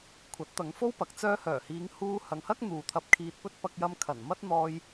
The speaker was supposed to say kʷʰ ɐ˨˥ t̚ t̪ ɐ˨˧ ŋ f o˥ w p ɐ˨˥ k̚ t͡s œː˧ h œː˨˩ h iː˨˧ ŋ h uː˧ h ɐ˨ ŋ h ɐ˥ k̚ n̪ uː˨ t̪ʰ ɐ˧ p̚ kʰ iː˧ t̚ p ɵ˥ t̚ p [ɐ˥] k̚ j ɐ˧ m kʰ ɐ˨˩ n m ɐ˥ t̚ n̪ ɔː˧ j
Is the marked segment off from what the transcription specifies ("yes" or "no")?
yes